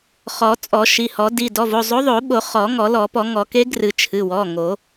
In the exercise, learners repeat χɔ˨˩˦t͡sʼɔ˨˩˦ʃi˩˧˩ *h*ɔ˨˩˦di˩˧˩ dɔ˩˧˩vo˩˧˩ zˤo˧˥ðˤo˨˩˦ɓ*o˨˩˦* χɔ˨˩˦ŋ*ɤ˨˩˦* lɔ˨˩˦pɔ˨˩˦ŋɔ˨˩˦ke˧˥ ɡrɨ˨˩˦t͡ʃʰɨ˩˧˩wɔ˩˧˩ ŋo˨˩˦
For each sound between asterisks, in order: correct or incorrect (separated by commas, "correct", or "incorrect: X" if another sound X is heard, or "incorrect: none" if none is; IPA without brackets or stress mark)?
correct, correct, incorrect: ɔ˨˩˦